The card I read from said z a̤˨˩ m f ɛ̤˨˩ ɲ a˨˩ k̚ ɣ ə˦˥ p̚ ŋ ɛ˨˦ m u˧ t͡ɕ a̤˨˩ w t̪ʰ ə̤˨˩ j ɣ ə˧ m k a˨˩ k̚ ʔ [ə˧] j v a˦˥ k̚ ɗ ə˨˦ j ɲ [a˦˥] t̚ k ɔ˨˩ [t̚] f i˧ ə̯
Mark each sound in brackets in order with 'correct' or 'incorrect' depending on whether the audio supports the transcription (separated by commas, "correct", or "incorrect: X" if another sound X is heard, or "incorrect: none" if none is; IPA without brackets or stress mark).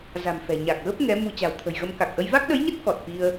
correct, incorrect: ə˦˥, correct